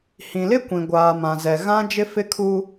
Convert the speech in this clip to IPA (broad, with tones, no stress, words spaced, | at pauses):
hĩ˨lɪ˦ kʷĩ˨ ɡʷaː˨ mã˨zɛ˨ ɣã˦d͡ʒɪ˦ fɪ˦kʰu˦